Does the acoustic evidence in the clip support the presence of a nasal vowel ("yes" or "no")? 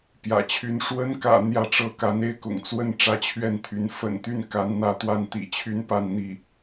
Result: no